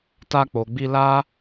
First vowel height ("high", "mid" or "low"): low